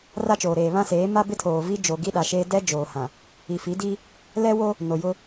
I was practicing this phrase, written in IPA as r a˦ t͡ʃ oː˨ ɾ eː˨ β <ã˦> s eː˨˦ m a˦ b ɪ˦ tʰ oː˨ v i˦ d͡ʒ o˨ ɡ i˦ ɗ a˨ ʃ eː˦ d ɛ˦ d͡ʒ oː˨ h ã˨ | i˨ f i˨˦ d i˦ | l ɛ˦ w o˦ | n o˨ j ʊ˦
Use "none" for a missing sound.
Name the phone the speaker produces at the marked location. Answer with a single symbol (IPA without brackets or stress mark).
ã˦